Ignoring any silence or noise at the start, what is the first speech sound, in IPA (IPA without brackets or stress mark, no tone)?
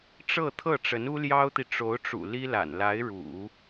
ʈ͡ʂ